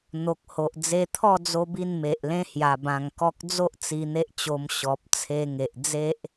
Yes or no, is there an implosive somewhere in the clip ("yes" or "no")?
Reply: no